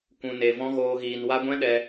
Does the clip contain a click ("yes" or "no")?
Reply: no